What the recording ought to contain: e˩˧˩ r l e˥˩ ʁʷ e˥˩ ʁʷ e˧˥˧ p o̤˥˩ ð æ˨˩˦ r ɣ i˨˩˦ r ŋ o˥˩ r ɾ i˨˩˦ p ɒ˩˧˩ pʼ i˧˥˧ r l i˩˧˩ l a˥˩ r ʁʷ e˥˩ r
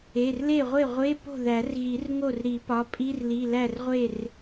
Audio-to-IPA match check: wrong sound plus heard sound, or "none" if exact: a˥˩ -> æ˥˩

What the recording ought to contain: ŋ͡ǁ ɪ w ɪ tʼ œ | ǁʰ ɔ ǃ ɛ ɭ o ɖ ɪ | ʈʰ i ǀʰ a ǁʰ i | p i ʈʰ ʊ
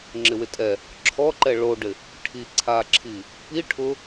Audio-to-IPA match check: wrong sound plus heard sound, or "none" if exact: œ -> ɛ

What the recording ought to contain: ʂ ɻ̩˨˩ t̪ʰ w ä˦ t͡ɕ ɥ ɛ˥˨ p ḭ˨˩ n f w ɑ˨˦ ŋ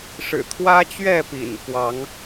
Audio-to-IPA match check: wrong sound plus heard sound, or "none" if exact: none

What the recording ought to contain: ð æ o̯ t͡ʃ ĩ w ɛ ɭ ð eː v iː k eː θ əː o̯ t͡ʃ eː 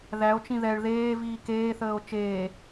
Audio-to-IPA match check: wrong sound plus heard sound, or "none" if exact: w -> ð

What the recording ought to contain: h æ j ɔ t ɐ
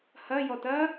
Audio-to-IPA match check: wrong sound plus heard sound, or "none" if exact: æ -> ɐ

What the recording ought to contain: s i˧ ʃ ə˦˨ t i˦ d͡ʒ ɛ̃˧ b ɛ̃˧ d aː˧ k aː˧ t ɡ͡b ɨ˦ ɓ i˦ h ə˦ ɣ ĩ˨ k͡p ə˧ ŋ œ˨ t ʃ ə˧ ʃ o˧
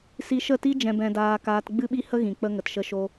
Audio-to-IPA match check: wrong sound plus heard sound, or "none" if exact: œ˨ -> ə˨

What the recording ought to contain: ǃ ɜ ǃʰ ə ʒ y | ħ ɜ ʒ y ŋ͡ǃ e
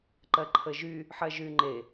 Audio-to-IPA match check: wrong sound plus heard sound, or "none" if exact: none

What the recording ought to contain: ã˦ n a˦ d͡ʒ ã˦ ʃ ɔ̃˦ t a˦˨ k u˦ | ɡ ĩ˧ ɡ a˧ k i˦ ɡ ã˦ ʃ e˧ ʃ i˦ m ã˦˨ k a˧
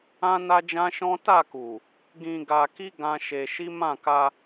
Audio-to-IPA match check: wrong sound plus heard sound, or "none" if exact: u˦ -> u˨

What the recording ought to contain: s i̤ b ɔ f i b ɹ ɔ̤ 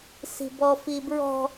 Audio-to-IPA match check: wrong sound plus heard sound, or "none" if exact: none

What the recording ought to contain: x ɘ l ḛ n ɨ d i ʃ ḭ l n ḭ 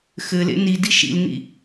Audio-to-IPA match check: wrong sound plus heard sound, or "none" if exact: ɨ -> i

